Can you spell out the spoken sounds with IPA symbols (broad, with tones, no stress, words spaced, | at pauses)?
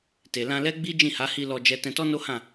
te˨lã˧lɛ˦ɡ͡bi˦ d͡ʒĩ˦˨ha˨˦hi˧ lɔ˧d͡ʒɛ˧ tɛ̃˧tɔ˦no˦hã˦˨